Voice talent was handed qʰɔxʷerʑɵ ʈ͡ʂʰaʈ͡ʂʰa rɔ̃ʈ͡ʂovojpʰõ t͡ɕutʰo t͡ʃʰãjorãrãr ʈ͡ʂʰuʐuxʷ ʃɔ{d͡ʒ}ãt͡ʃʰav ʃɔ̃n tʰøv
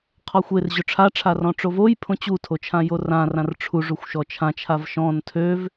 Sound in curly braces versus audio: incorrect: t͡ʃʰ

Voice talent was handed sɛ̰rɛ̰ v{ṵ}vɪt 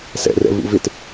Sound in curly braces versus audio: correct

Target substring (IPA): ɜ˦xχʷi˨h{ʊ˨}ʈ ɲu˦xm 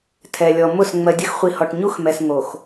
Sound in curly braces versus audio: incorrect: ɔ˨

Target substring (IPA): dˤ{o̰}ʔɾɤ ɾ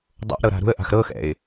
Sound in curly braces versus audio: correct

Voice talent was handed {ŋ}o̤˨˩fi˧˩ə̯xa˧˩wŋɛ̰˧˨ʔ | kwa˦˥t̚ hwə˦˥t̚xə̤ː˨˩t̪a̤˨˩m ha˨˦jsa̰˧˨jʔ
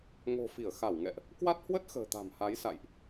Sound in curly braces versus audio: correct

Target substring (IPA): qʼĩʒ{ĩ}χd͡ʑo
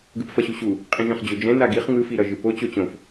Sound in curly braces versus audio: incorrect: ẽ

